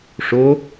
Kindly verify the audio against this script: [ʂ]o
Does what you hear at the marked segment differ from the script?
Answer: no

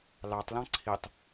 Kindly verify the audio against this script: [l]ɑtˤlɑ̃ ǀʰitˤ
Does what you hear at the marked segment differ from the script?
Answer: no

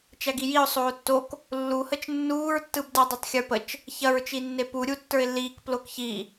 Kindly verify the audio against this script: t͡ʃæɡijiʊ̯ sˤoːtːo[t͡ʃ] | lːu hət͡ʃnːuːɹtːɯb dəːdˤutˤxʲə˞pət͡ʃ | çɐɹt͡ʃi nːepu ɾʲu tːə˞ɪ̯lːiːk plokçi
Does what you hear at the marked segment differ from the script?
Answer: yes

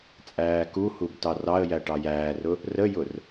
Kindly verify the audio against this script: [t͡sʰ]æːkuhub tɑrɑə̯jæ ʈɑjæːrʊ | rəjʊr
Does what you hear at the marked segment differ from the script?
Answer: yes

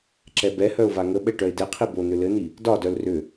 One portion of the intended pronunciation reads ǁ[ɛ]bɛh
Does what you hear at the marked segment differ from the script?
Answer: no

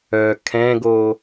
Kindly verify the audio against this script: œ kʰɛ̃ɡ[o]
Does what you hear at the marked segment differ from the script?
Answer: no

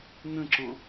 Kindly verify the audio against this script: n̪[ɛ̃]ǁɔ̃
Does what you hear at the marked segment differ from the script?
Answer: yes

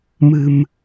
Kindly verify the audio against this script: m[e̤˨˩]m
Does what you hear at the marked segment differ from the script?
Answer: yes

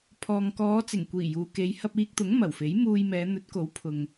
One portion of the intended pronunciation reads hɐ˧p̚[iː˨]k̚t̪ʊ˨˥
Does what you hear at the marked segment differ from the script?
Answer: yes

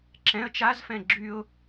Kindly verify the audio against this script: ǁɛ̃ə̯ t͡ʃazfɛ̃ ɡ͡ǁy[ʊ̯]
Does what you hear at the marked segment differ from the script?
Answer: no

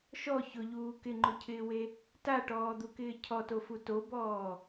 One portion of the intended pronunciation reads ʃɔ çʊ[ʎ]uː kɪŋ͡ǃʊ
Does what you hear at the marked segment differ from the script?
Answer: no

